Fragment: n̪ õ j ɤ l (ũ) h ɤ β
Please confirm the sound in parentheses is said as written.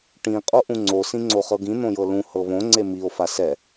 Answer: yes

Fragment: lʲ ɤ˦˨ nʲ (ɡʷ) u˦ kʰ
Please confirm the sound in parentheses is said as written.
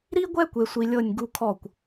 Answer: no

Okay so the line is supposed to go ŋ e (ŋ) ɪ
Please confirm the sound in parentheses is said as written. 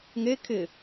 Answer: no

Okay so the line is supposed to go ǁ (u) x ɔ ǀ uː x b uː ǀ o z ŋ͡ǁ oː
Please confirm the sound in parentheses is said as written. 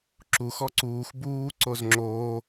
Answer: yes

